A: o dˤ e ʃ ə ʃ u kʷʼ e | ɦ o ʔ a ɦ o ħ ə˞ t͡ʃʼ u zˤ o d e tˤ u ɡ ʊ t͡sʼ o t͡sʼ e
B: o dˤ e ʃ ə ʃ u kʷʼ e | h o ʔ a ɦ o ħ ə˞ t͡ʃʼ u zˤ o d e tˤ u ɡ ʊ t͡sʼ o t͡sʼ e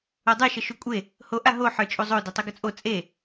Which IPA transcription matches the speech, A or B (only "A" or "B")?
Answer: B